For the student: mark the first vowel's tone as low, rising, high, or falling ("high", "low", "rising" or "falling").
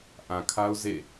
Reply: low